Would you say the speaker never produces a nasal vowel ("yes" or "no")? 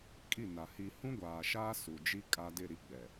no